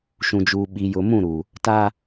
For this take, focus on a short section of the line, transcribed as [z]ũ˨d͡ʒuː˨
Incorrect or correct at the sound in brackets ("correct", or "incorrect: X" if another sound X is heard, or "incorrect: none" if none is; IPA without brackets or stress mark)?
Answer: incorrect: ʃ